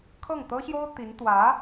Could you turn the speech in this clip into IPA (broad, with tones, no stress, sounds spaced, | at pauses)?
kʰ ɤ˥˩ ŋ t̪ ɤ˥ ɕ j o˥ ʊ̯ t̪ i˧˥ n t̪ w ä˧˥